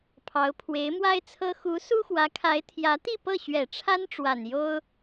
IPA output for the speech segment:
pʰ ɑ˧˥ ʊ̯ pʰ w e˧˥ ɪ̯ m w a˥ ɪ̯ t͡sʰ ɤ˥ x u˧˥ s u˥ x w ä˧˥ kʰ a˧˥ ɪ̯ t̪ʰ j ä˧˥ t̪ i˥˧ p ɤ˥˩ ɕ ɥ ɛ˨˩ ʈ͡ʂʰ a˥ n ʈ͡ʂ w a˨˩ n j o˥ ʊ̯

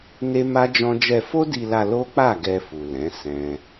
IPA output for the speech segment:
n e˦ m a˦ d͡ʒ ɔ̃˦ d͡ʒ ɛ˧ f o˦ d i˧ l a˧ l o˦ k͡p a˦˨ ɡ ɛ˧ f u˨ l ɛ̃˨˦ s ɛ̃˦

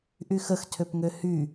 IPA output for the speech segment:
ʔ y x ə x tʰ ø p ŋ ø h y

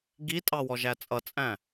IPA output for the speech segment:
ɡ i tʼ ɑ w ɔ ʒ æ t͡sʼ ʌ t͡sʼ æ̃

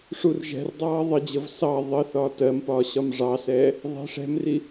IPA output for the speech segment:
ʂ u r ʒ ɛ̤ r dˤ ɑː ðˤ ə d͡ʑ ə v s ɑ ðˤ ə θ ɒː t ɜ m p ɒː ɕ ɒ m ʐ ɑ s ɛː | ðˤ ɛ̤ ʂ ɛ̤ m r i

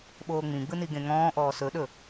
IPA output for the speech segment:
ɓ oː ŋ͡m ĩ ɡ͡b ɯ n i ɡ ẽ ŋ ɔ̃ː ʔ ɔː s ɵ ɗ ɵ

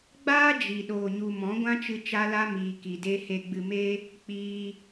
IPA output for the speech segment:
ɡ͡b aː˦ d͡ʒ i˨ ɗ oː˨ ɲ u˨ m ɔ̃˨˦ ɡʷ ã˦ t͡ʃ ɨ˧ t͡ʃ a˧ l a˧ m iː˨ k i˨ d e˧ h e˨ ɡ͡b ɨ˨ m e˧ | k͡p iː˧

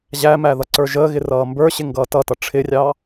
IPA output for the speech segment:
ʑ æ m æ ð ʌ ǀ ə˞ ʒ əː ɣ ɪ r ʌː m b ə˞ ɕ ɪ ŋ ɡ ʌː t ʌ t ʌ ʈ͡ʂʰ ɪ rʲ ɑ

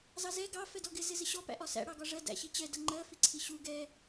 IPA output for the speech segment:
z ɑ z ɛ ɡ ɑ f ɛ d ɔ ɡ ɪ z ɪ z ɪ ɕ ɔ p æ̰ ʔ ɒ s æ̰ ɽ ɑ ɡ ɒ ʐ ɜ d æ̰ ɕ i t͡ɕ ɛ d ʌ ŋ͡ǃ ɜ f i ǀʰ i ɕ u ɡ ɛ

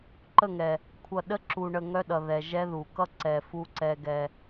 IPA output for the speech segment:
ǃ ə˦˨ ŋ ɛ˨ | kʷʰ ʌ˨ ɗ ə˦ ǁ u˨ ɳ ə˨ ŋ œ˦ ɗ ʌ˨ ð ɛ˨ ʒ ɛ˦ ð u˨ k ʌ˦ ǀ ɛ˨ f u˦ ǀ ɛ˦ ɡ ɛ˦

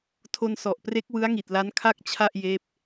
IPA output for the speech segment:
tʰ o˧ n s ɔ˨˩ ʔ p r e˦˥ k̚ w ɯ˦˥ a̯ ŋ i˨˩ t̚ l a˦˥ n kʰ a˥˩ k̚ t͡ɕʰ a˥˩ ʔ j eː˦˥ p̚

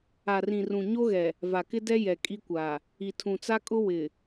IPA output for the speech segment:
a˨ r ĩ˨ r ũ˨ ɲ o˦ ɣ ɛ˨ | v a˨ k ɪ˦ d ɛ˦ j ɛ˨ kʼ i˦ kʷ a˨ | i˨ tʰ ũ˨ t͡s a˦ kʼ ʊ˦ w ɪ˨

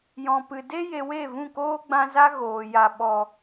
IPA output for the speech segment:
j ɔ̃˨ p ɨ˨ d e˦ j e˨ w e˦˨ v ũ˦˨ k oː˦ ɡ͡b ã˧ z a˦ ɣ oː˨ j a˨ ɓ ɔ˨

